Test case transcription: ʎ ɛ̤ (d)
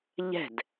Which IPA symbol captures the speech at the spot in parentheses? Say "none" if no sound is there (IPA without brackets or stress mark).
d